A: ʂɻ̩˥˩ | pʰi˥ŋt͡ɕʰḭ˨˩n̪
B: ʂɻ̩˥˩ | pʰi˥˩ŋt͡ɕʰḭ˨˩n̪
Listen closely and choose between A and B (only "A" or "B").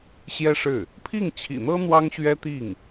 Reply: B